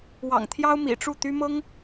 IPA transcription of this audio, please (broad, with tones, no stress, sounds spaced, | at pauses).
w ɑ̰˨˩ ŋ t̪ʰ j ɑ˥ ʊ̯ m ḭ˨˩ ʈ͡ʂ u˥˩ t̪ y˥ m ɤ˥ ŋ